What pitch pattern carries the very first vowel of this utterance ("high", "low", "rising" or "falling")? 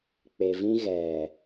low